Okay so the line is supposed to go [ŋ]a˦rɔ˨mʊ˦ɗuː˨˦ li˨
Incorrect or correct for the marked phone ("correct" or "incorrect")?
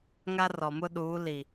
correct